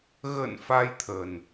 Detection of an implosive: absent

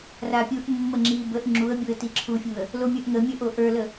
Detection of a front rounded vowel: absent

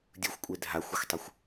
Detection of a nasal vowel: absent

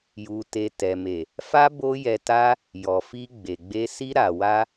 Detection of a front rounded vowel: absent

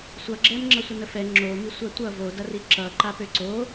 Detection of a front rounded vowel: present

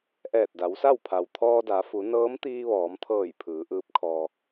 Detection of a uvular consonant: absent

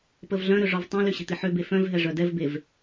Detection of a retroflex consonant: present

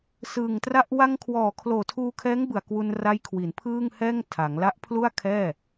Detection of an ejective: absent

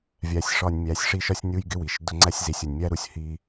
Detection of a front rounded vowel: absent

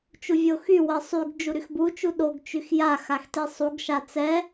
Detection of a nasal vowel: absent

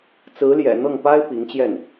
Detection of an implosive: absent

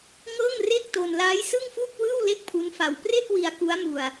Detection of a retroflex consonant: absent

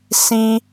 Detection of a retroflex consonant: absent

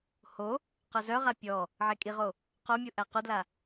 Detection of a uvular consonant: present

